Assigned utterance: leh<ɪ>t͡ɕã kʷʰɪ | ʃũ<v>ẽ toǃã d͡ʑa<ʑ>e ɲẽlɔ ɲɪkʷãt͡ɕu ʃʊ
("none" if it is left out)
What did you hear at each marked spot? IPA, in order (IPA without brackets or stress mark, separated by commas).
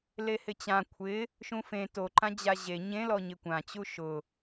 ɪ, f, ʑ